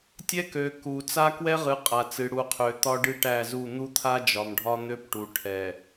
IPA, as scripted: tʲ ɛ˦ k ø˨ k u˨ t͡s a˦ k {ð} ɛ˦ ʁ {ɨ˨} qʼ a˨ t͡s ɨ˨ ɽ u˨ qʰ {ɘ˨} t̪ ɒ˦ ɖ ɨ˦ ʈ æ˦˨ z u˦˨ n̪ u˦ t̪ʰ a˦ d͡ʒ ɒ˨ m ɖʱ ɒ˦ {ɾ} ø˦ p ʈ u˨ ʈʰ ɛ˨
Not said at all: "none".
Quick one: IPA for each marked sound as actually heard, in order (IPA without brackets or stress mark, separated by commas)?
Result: w, ɨ˨, ø˨, n̪